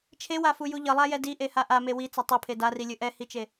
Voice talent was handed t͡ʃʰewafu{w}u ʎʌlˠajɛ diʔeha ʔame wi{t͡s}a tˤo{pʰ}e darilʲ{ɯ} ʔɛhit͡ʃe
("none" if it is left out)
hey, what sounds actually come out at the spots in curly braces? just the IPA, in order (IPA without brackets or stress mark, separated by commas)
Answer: j, t͡s, pʰ, ɯ